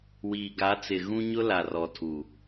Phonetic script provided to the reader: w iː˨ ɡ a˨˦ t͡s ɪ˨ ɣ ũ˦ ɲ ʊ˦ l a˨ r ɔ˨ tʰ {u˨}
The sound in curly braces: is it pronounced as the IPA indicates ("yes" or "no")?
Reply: yes